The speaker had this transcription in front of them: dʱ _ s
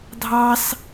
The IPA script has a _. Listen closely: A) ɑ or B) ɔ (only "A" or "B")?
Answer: A